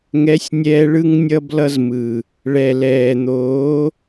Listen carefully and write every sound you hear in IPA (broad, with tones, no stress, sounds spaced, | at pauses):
ŋ ɛ˨˦ sʲ nʲ ɛː˧ ɭ ɯ˦ ŋ nʲ ʌ˦ b l ʌ˦ z m ɯ˨ | ɭ ɛ˨ l ɛː˨ n̪ oː˨˦